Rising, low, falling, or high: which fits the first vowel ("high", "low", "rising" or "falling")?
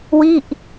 falling